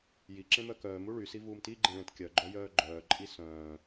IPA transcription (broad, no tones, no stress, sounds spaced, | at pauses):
j i ǁ ẽ m œ k œː m u ɭ y s i v uː m t i ɡ͡ǃ ẽ ɭ ẽ t kʲ œ ɡ͡ǃ œ j œː ɡ͡ǃ œː ǃʼ i s œ̃ː